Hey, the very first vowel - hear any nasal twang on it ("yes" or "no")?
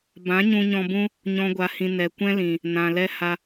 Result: yes